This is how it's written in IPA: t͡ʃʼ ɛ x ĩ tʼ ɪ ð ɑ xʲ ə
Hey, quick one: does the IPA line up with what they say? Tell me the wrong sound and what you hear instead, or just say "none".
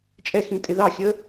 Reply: none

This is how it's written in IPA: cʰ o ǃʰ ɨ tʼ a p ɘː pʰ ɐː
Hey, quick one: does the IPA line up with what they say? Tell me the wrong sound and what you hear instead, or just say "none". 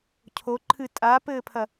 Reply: ɐː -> ɐ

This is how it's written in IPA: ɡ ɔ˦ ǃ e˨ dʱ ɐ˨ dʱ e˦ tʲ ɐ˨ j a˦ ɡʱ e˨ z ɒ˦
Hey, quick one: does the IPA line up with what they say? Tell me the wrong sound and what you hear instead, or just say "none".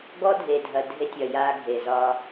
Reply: ǃ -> dʱ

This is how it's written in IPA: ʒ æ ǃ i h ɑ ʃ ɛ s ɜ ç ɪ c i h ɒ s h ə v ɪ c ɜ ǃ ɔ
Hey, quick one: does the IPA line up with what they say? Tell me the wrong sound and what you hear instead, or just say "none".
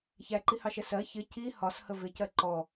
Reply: ʒ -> ç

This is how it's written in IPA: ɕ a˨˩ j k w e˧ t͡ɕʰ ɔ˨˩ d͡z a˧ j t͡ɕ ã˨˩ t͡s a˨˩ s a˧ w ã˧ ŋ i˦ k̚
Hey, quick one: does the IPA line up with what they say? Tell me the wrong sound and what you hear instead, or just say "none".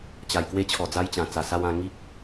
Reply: ɕ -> t͡ɕ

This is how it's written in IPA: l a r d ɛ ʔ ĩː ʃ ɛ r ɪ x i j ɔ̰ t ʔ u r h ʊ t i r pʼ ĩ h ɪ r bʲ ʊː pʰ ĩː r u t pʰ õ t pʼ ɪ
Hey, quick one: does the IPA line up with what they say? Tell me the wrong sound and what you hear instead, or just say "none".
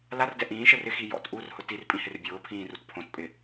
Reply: none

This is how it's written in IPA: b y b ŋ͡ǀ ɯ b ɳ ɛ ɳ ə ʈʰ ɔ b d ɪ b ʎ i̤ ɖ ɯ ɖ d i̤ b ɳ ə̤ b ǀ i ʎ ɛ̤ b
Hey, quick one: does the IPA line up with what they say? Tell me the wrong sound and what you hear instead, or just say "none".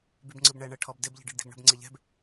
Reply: ǀ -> ŋ͡ǀ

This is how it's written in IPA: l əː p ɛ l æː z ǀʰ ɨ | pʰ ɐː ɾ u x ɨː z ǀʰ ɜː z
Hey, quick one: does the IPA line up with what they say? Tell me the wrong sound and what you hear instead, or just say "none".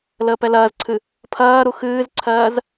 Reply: æː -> ɐː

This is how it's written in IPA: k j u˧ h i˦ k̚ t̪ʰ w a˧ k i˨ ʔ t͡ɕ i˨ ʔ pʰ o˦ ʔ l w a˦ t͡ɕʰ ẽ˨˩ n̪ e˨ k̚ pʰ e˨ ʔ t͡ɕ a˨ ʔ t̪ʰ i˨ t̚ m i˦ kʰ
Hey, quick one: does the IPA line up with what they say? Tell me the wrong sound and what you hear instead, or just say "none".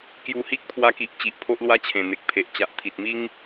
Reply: kʰ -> ŋ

